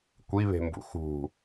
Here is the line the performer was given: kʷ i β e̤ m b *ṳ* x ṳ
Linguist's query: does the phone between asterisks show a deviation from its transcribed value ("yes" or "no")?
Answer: yes